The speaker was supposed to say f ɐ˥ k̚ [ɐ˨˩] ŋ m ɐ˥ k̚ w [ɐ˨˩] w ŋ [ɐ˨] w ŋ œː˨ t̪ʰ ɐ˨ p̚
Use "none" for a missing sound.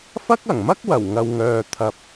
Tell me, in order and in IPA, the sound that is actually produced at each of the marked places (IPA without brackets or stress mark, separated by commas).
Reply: ɐ˨˩, ɐ˨˩, ɐ˨